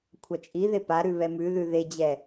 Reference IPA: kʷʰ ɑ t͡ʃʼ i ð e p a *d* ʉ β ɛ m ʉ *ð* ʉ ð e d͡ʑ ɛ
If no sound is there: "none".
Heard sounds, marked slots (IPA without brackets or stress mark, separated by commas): ɾ, ð